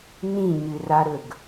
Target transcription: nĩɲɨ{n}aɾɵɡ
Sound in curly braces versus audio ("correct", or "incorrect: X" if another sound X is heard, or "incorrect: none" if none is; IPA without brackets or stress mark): incorrect: r